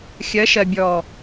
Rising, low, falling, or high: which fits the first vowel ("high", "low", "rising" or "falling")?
rising